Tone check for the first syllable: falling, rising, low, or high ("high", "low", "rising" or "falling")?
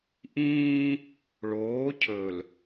high